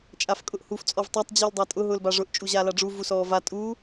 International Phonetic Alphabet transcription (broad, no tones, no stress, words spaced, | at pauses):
t͡ʃʼafkʼʊʔhuf t͡sʼɔvtˤatˤ d͡ʑuːldˤatʼʊ ɦʊːlbaʐʊʔ t͡ʃʼuʑaːlaɖ͡ʐu vusɔːva tʼuː